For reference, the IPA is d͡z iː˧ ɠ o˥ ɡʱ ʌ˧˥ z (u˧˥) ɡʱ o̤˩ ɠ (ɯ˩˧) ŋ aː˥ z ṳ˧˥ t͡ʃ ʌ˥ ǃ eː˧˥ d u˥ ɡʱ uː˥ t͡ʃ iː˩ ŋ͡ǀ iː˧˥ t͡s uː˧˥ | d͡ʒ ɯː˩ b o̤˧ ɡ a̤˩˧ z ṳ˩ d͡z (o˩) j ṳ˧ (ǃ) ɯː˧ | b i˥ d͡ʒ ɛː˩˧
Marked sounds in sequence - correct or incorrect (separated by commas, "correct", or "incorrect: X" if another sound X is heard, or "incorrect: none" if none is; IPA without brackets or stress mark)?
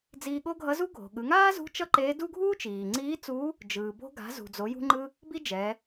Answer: incorrect: u˥, correct, incorrect: o˩˧, incorrect: ŋ͡ǃ